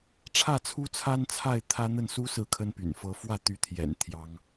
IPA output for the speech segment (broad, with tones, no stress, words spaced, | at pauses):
ʈ͡ʂʰä˥˩t͡sʰu˥t͡sʰa˥n t͡sʰa˥˩ɪ̯t̪ʰä˥n̪ə˥˩n su˥ sɹ̩˥˩kʰə˥npy̰˨˩n fɤ˧˥fwä˥˩ t̪y˧˥t̪ʰjɛ̰˨˩n t̪ʰjɑ˥ŋ